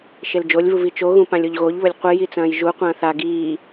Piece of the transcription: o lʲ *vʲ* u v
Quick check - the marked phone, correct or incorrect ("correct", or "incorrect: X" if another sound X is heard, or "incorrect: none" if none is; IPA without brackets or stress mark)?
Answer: incorrect: v